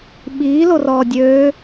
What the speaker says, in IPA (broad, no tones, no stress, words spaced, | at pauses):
ɓiː lorɔːdʲøː